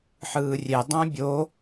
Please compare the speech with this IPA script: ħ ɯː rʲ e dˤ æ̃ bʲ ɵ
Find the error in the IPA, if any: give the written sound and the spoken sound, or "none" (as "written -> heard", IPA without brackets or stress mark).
ɵ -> o